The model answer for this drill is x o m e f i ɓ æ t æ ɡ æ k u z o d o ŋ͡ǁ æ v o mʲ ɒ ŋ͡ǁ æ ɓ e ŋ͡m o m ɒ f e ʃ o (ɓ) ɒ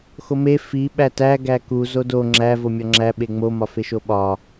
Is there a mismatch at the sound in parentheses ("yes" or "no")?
no